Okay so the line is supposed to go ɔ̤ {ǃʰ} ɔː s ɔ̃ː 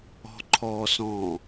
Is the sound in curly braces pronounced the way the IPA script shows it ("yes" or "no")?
yes